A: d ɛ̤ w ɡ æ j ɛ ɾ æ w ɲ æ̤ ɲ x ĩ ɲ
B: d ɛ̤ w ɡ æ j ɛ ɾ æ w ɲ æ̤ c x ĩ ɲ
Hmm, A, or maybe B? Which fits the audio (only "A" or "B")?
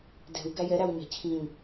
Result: B